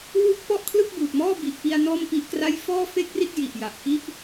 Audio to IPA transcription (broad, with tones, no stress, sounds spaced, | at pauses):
w u˦˥ k̚ p ɔ˥˩ ʔ kʰ l ɯ˥˩ k̚ b uː˨˩ t̚ m ɔː˥˩ b i˨˩ ʔ p i˧ a̯ n ɔː˥˩ m p i˦˥ ʔ k r a˥˩ j f ɔː˥˩ f e˥˩ k̚ r i˥˩ t̚ j i˨˩ ʔ j a˨˩ ʔ k i˥˩ ʔ